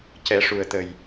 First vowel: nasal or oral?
oral